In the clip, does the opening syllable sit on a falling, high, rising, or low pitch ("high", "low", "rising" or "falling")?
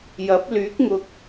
rising